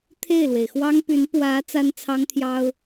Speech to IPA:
t̪ʰ e˥˩ ɪ̯ l w e˩ ɪ̯ x w ɑ˥ ŋ p y˧˥ n p w ä˧˥ t͡s a˥ n t͡sʰ ɑ˥ ŋ t̪ʰ j ɑ˥ ʊ̯

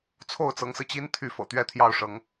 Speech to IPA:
t͡sʰ o˥˩ ʊ̯ t͡s ɤ˧˥ ŋ s ɹ̩˧ t͡ɕ i˥ n t̪ʰ y˥˩ f ɤ̰˨˩ t̪ ɥ ɛ˥ t̪ʰ j ɑ˥˩ ʊ̯ ʂ ɤ˧˥ ŋ

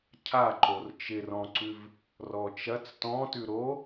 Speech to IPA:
cʰ a ǃ o r t͡ʃ ɪ r ɔ̃ ǀ ʉ v | r ɔ t͡ʃ ɐ t͡s t ɔ̃ t ʉ ɾ o

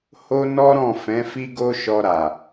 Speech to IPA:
h o˦ n ɔ˦ ɾ ɔ̃˦˨ f ɛ̃˨˦ f i˦ ɡ o˦ ʃ ɔ˧ ɾ a˨

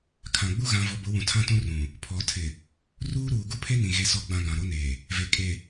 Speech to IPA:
kʰ ã˨ ɡ͡b u˦ ɣ ã˨ v ɔ˨ b ʊ˨˦ w ũ˨ tʰ ã˦ t ũ˦ r ũ˨ | pʰ ɔ˨ tʰ ɪ˨ | r uː˦ ɾ uː˨ ɡ u˦ pʰ e˦ n ĩ˨ ɣ e˨ s ɔ˨ ɡ͡b ã˨ ɡ ã˨ ɾ o˦ n eː˨ | v e˨ kʼ e˨

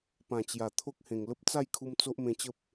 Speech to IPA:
p ã˨˩ t͡ɕ j a˨˩ t̪ʰ o˦ k̚ h ẽ˨˩ ŋ l ə˦ p̚ t͡s a˥˧ j kʰ u˧ m t͡s o˦ ʔ m ẽ˧ t͡ɕ ə˦ p̚

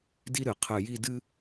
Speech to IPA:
d i˥ ɾ ɨ˩˧ qʰ ɨ˧˩ j i˥˧ d ɨ˥

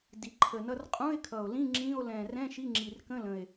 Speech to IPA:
d i˨˩ ǃʰ ə˨˩ n ʌ˧˥˧ r qʼ ũ˧˥˧ e̯ kʰ ʌ˨˩ o̯ l ĩ˧˥˧ ŋ͡ǁ ĩ˧˥˧ o̯ l ɛ̃˨˩ r ɛ̃˧˥˧ ʃ i˧˥˧ ŋ͡ǁ i˨˩ r k ə̃˧˥˧ l ə̃˨˩ e̯

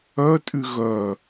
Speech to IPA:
œ tʼ y ɣ œ

